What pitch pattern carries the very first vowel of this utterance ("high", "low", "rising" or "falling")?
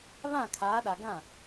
falling